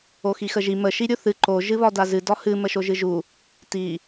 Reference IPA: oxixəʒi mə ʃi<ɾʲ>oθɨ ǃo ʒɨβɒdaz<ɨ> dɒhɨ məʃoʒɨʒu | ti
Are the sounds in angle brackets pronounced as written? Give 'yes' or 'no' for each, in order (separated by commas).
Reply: yes, yes